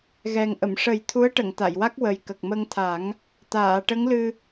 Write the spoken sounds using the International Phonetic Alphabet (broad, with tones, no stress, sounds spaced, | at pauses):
ɣ ɛ˨˩ ŋ ʔ ə˨˩˨ m ʂ ə˨˩˦ j t̪ʰ u˧˥ ə̯ ʈ ə˨˩˨ ŋ t̪ a˨˩˨ j w a˦˥ k̚ w ə˨˩ j k ə˨˩ k̚ m ə˧ ŋ t̪ʰ a˨˩˦ ŋ | t̪ aː˨˩˨ ʈ ə˧˥ ŋ l ɨ˧